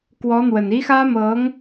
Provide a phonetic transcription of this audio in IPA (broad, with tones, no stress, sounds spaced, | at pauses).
k w ɔ˧˥ n̪ w ə˨˩ n i˥ x ä˥ m ɤ˧˥ ŋ